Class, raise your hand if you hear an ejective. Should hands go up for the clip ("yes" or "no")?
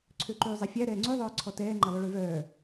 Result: no